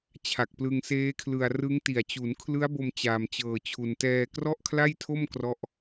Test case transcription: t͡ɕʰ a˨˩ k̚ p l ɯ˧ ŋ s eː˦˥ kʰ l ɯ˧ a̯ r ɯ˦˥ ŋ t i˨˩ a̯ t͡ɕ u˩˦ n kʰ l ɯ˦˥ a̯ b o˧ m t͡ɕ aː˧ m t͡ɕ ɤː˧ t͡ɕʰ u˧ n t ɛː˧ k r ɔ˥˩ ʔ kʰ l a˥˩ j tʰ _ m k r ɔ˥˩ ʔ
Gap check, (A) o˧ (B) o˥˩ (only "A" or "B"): B